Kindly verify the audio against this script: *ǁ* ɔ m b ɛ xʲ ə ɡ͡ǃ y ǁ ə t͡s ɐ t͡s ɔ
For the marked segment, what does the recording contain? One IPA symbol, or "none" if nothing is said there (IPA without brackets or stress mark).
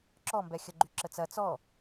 ǁ